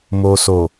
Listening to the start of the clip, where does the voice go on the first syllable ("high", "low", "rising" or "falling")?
low